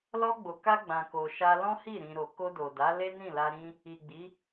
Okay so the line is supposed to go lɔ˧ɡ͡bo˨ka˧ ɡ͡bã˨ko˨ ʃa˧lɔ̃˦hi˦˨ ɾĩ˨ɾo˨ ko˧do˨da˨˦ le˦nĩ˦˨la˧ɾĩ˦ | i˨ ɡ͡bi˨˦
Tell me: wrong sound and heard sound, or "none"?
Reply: none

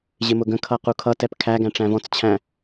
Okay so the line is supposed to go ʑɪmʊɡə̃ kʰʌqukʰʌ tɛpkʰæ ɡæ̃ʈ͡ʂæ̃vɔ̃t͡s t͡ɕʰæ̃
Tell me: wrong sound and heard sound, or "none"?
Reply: none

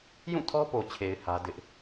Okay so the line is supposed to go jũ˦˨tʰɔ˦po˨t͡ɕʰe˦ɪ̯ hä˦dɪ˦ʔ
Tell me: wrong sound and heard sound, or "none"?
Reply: e˦ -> e˨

